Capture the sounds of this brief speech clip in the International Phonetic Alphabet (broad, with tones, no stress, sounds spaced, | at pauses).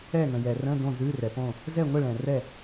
ɛ˥˨ ŋ ə̃˨ j ɛ˨ r ə̃˧˥˧ d õ˥˨ z ʉ˧˥˧ r ɛ˨ p õ˥˨ | z ɛ˥˨ ŋʷ ə˥˨ ɭ ɛ̃˨ r ɛ˥˨